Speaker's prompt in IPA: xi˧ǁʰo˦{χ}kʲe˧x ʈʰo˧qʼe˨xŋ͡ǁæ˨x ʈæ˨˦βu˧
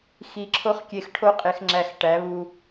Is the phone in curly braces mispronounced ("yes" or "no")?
no